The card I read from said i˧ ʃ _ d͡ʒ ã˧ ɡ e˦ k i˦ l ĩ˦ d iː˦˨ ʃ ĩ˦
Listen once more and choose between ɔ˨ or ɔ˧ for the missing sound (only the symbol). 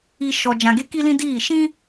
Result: ɔ˧